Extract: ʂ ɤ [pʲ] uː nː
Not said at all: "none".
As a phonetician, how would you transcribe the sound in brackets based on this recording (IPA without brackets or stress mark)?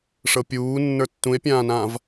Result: pʲ